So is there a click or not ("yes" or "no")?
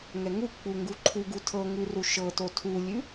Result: yes